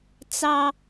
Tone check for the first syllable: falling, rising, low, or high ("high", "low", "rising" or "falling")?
high